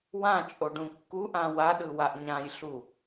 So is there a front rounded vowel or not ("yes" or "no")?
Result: no